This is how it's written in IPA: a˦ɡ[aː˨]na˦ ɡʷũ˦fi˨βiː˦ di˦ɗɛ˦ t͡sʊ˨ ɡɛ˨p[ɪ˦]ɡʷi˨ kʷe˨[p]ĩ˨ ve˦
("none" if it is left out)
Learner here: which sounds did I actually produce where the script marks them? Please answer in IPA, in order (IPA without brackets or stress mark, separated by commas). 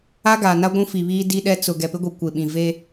aː˨, ɪ˦, ɓ